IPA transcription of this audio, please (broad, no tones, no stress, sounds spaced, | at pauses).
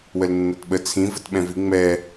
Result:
w ə l nː ɜ t ɓ ə t͡sʰ ĩ v ə t ɓ ɛ̃ v i ŋ͡m ɛ